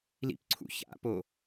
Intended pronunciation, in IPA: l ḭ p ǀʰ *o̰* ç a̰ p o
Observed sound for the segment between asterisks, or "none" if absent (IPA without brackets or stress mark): ṵ